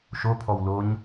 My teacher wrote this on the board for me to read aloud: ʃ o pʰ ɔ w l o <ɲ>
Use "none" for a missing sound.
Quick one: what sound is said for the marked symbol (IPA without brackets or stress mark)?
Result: ɲ